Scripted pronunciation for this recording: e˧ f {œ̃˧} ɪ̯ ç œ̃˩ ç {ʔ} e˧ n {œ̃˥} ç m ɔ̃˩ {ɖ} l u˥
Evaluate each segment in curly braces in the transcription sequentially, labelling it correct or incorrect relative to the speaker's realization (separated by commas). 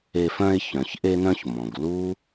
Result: correct, correct, incorrect, incorrect